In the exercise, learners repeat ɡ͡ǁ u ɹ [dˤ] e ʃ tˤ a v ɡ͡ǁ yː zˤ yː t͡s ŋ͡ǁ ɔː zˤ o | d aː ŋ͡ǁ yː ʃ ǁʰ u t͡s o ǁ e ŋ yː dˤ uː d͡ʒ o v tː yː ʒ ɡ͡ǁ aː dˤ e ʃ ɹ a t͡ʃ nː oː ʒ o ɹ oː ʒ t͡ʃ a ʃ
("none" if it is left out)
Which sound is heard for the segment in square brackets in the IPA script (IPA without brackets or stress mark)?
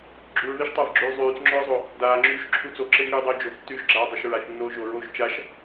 ð